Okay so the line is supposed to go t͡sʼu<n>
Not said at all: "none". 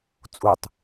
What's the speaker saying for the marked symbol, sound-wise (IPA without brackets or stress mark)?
tˤ